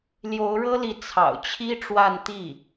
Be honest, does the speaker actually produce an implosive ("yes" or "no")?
no